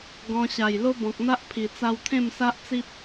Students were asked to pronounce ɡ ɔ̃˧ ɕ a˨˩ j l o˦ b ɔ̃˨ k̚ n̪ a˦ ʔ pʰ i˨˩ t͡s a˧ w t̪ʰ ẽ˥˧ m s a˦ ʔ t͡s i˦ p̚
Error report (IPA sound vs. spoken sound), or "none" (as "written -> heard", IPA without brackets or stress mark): none